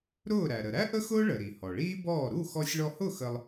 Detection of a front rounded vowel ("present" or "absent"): absent